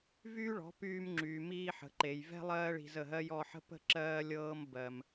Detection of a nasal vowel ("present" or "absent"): absent